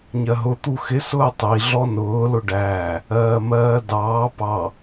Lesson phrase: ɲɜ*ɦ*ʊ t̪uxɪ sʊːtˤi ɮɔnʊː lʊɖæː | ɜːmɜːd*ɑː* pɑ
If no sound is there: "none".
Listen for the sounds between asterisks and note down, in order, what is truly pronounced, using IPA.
ɦ, ɑː

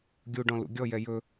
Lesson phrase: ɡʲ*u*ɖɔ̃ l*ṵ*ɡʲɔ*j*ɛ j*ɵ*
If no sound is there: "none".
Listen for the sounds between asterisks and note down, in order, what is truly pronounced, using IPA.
u, ṵ, j, ɵ

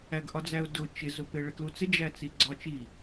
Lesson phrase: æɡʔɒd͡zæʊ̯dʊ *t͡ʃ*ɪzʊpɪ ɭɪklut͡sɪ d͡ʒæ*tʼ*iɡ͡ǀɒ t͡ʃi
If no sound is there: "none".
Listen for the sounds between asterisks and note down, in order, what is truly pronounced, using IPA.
t͡ʃ, t͡s

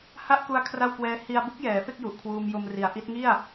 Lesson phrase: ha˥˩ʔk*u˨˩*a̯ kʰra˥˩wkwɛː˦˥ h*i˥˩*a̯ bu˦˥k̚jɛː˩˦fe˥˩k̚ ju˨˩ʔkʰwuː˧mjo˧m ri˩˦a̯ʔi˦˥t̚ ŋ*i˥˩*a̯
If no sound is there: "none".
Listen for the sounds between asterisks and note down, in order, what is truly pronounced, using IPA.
u˧, i˧, i˥˩

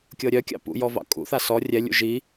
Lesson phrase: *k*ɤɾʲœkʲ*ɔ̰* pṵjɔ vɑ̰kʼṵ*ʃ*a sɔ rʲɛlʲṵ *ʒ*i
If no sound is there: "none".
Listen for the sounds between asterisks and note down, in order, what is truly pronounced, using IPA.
kʲ, ɑ̰, θ, ʒ

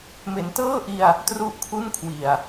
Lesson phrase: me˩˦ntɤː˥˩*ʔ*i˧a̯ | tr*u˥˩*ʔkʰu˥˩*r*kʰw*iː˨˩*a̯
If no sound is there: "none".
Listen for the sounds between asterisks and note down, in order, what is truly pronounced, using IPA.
ʔ, u˥˩, n, i˨˩

